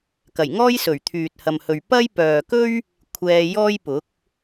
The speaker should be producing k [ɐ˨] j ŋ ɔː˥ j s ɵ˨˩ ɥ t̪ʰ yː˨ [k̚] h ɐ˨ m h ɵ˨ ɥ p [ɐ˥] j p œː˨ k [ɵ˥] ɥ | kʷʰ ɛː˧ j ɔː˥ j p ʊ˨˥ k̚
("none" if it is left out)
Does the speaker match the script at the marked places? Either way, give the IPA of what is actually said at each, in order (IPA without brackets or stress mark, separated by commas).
ɐ˨˩, t̚, ɐ˥, ɵ˥